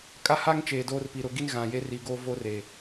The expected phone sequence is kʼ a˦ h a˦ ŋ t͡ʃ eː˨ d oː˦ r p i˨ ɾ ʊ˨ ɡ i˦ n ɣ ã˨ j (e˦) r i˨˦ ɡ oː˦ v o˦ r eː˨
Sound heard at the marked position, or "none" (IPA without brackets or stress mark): e˦